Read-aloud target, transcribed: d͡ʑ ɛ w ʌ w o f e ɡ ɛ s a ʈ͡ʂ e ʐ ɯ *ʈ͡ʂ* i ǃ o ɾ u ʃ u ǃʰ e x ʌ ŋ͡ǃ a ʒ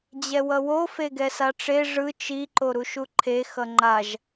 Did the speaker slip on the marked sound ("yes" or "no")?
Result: yes